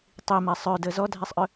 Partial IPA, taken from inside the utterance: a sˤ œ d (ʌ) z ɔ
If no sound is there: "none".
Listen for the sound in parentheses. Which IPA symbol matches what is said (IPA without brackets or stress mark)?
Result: ə